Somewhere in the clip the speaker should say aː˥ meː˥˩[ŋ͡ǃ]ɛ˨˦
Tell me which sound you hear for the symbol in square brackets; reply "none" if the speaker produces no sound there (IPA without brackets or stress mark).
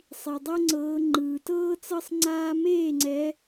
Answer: ŋ͡ǀ